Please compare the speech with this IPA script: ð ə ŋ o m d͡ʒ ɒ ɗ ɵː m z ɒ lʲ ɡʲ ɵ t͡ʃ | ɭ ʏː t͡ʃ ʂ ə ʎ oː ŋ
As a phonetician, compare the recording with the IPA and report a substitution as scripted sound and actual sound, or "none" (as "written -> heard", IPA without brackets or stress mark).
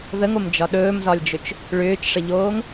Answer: ɡʲ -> d͡ʒ